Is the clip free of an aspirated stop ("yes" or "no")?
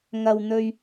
yes